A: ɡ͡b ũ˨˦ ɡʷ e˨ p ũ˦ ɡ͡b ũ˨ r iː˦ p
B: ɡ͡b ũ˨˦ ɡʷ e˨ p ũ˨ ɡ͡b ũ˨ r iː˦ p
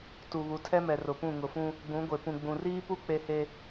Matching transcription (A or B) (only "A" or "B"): B